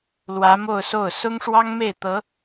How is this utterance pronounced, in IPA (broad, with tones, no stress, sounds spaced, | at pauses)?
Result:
l w ä˧˥ m o˥˧ ʊ̯ s o˥˩ ʊ̯ s ʊ˥ ŋ ʂ w ɑ˥ ŋ m e˥˩ ɪ̯ t̪ ɤ˧˥